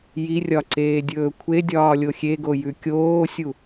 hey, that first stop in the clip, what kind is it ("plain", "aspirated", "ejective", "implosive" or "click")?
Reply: click